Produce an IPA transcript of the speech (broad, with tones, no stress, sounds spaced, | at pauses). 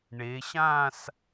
ɳ e˩˧ ɕ ã˥˧ s